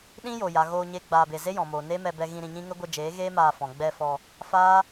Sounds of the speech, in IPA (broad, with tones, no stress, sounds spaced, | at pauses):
ɗ ĩ˦ j o˨ j a˨ ɣ oː˧ ɲ e˦ ɡ͡b aː˧ b e˧ z e˦ j ɔ̃˨ m oː˨ n e˦ m ɛ˧ b ɛ˧ ɣ ĩ˧ ɾ ĩ˨ ɲ ĩ˦ ŋ ə˦ ɡʷ ə˧ d͡ʒ eː˨˦ ɣ eː˦ m aː˧ f ɔ̃˨ ɡ͡b ɛ˧ f ɔ˧ | f aː˦